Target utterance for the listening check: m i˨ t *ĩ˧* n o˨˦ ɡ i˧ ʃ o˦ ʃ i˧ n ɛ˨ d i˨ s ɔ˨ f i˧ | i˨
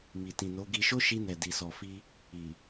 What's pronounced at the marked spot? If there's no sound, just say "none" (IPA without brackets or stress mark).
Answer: ĩ˨